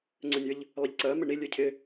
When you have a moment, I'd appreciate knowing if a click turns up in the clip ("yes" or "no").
yes